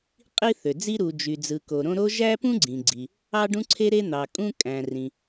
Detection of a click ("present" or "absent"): present